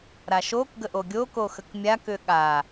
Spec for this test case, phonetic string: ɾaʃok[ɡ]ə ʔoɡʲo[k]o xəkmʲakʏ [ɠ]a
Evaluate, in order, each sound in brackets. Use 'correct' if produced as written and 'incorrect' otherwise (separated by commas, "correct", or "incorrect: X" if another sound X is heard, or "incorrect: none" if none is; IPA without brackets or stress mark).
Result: correct, correct, correct